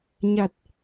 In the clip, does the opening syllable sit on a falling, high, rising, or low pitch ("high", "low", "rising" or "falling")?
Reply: low